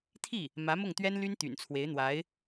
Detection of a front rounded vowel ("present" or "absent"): present